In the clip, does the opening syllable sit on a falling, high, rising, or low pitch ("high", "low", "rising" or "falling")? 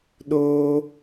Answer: high